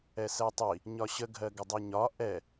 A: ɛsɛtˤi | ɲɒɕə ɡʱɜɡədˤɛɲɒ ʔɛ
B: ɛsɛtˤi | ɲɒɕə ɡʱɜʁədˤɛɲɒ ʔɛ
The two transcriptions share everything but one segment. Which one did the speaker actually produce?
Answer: A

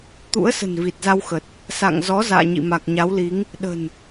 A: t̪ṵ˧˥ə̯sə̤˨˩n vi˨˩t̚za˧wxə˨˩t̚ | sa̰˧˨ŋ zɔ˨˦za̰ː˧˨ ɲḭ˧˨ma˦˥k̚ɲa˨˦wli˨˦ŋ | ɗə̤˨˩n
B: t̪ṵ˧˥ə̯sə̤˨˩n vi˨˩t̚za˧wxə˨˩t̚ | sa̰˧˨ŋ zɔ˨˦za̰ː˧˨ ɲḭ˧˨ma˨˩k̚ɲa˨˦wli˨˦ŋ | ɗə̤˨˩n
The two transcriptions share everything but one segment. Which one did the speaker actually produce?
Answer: B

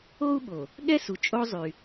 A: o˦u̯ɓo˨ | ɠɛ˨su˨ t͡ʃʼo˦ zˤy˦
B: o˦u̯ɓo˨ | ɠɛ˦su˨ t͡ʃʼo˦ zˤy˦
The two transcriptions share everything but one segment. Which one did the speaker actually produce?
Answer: B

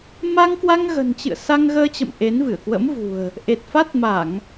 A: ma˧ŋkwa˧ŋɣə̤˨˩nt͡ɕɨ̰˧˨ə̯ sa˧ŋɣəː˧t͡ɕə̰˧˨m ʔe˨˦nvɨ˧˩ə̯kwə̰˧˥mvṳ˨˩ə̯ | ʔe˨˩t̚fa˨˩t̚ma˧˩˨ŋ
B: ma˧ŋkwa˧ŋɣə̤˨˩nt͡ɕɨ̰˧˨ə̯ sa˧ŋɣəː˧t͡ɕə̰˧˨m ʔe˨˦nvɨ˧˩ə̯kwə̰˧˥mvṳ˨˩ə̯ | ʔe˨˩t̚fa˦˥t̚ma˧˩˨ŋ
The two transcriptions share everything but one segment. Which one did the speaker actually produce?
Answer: B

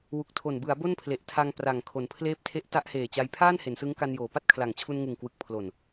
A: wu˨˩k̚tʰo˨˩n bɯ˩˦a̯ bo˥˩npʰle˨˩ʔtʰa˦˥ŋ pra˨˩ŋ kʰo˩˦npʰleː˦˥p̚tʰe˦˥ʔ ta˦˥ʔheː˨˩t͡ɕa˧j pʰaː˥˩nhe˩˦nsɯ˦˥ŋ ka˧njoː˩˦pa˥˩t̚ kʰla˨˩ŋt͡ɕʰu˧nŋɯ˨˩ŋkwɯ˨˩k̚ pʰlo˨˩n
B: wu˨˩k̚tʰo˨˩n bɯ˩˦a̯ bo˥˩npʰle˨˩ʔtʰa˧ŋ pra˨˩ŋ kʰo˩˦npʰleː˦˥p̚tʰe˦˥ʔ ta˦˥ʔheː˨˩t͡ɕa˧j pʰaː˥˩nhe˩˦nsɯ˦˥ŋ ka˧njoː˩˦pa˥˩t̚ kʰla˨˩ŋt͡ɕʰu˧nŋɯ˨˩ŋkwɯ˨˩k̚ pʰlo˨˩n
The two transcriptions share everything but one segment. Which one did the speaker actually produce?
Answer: B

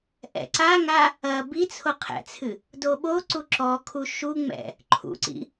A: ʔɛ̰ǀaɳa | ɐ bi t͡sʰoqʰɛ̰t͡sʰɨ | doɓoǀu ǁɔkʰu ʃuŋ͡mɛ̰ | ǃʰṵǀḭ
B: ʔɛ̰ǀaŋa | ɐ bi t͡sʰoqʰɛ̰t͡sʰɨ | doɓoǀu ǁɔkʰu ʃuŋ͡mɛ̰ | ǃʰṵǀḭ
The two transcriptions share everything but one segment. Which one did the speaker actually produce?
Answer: B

